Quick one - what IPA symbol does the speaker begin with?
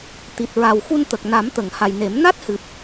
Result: t̪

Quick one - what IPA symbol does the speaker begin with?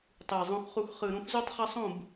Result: tˤ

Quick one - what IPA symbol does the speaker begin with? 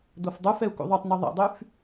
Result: d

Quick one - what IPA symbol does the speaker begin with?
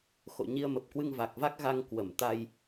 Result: x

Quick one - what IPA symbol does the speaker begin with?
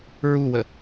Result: ɹ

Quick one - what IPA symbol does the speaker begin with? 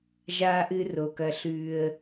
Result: ʒ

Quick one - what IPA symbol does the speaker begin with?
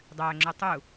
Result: dˤ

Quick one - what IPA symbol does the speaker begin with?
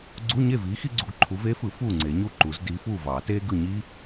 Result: ɡ͡ǀ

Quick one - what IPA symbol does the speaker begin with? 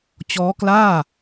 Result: t͡ɕ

